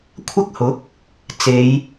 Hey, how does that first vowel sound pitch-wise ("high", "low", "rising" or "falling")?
high